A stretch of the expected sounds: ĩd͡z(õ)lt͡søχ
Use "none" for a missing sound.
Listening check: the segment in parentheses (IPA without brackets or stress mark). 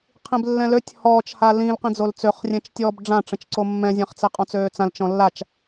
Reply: o